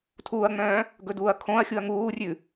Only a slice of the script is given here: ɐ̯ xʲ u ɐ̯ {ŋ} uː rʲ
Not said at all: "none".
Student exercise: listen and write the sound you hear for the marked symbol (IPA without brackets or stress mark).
ŋ